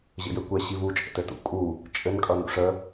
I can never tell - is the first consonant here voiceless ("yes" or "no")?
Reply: no